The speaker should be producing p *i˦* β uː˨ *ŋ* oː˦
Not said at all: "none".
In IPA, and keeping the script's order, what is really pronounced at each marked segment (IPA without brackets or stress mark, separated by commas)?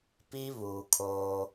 i˦, kʰ